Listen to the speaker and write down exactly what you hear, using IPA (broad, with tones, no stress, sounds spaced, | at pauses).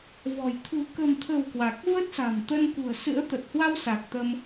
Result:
v ɔ̤˨˩ j t̪ʰ ṳ˨˩ k ə̤˨˩ m t̪ʰ ə̤˨˩ w k w a˨˩ k̚ v ə˦˥ t̚ s a̤˨˩ m t̪ ə˧ n k ṳ˨˩ ə̯ s ɨ̰˧˥ ə̯ t̪ ə˨˩ t̚ h w a˧ w s a˨˩ k̚ t̪ ə˧ m